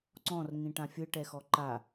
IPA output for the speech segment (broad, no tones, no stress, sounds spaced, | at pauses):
ǀ ɔ̃ r ŋ ĩ ʈ ã fʲ ɯ ʈ ɛ x ɔ ǃ a